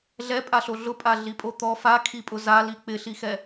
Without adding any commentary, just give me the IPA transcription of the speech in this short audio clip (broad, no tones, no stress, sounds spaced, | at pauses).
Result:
ɮ ɛ pʼ a ɬ o ɮ ʊ pʼ a ɮ i pʼ o t̪ ɔ f a kʰ i pʼ ʊ z a l i k͡p ɪ ɬ i x ɛ